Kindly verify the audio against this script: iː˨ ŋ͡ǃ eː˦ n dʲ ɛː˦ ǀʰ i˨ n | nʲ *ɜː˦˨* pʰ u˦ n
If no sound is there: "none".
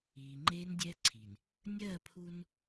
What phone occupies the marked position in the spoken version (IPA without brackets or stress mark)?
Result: ɜː˦˨